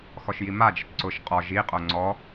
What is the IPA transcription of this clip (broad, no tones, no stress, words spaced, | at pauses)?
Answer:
xɔʃjimad͡ʒɪt ǀʊʃ qʼɔ ʒiqʼo ŋ͡ǀɔ